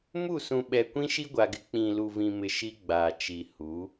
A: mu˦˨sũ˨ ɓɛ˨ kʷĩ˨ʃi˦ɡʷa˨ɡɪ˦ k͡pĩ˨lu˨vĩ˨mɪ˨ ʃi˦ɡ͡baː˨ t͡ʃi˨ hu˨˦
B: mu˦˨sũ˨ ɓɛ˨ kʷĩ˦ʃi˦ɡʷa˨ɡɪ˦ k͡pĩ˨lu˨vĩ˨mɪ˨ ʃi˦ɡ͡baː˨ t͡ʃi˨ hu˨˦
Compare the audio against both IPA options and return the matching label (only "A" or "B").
B